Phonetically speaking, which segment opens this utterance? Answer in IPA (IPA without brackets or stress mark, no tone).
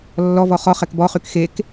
lː